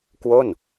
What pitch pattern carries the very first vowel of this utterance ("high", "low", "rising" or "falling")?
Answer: falling